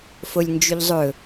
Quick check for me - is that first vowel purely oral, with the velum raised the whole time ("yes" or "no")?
yes